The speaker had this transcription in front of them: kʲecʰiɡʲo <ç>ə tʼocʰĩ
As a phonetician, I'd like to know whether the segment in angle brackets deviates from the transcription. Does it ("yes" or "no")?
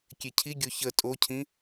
no